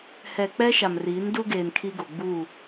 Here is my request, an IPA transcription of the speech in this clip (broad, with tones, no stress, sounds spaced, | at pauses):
h ɛ˨ k͡p ɛ˦ ʃ a˨ m r iː˨˦ n d u˦ ɡ eː˨ n kʰ i˦ ɡ o˨ ɡ͡b uː˦˨